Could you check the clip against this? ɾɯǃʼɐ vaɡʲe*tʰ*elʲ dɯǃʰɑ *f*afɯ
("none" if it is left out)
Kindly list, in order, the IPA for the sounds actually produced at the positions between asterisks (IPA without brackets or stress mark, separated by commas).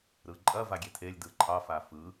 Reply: tʰ, f